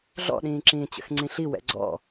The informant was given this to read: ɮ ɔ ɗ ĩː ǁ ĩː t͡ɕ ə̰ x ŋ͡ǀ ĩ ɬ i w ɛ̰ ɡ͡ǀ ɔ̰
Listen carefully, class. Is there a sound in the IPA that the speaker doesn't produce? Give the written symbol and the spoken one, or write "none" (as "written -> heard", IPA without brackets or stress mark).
ɔ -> ɔ̰